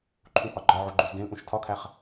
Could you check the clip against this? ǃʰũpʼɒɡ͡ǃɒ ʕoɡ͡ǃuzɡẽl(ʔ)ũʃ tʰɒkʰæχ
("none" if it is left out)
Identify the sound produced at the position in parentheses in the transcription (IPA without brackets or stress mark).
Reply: ʔ